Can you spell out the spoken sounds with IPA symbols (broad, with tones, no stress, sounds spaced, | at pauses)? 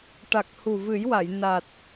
ʈ a˨˩ k̚ h u˨˩ v ɨ˨˩˦ j w a˨˩˨ j n a˨˩ t̚